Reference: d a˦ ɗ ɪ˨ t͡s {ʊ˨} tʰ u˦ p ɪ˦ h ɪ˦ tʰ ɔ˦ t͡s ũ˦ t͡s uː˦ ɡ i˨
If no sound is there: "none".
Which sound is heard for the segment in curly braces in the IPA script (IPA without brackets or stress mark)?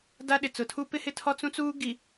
ʊ˨